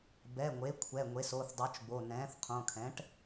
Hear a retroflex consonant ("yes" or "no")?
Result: yes